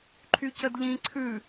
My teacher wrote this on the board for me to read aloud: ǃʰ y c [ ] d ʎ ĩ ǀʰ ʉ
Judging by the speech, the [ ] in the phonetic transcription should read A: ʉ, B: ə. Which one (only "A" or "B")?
B